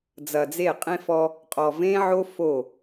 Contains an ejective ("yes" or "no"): yes